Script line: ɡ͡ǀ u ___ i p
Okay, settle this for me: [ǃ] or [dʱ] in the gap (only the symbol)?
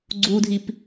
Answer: dʱ